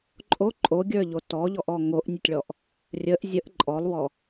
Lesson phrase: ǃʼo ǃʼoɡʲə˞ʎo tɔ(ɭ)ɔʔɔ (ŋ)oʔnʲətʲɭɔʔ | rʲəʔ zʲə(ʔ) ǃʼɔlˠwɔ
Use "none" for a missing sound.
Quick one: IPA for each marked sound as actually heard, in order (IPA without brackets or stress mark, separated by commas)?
ʎ, ŋ, ʔ